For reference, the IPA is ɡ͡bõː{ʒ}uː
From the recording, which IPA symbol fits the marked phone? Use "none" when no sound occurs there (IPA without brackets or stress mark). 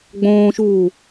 ʃ